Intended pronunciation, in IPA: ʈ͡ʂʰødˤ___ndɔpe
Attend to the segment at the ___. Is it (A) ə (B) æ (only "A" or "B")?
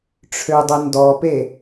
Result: A